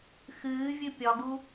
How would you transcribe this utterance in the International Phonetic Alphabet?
x ɨː vʲ ɨ pʲ ɒ ɡ u

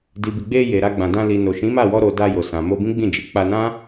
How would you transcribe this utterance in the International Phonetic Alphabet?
d i˨ b i˨ ɡ͡b e˧ j e˨ ɾ a˧ ɡ͡b ã˨ d ã˧ l i˨ n o˨ ʃ ĩ˨˦ m a˦˨ w ɔ˧ ɾ o˨ d a˧ j o˨ s ã˨ m o˧ b ĩ˦ ɡ͡b ĩ˦˨ d͡ʒ i˨˦ k͡p a˧ n ã˦

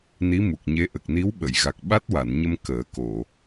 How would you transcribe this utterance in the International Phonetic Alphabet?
n i˧˥ m u˨˩ k̚ ɲ e˧˥ ʔ ə˨˩ k̚ n i˧˥ w ɓ ə˨˩˨ j ɣ a˨˩ k̚ ɓ a˦˥ t̚ w a˨˩˨ n ɲ ə˧ m k əː˨˩˦ k o˨˩˨

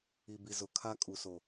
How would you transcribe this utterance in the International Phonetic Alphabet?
i˨ b i˨ z ʊ˨ kʰ a˦ kʼ u˨ s o˨

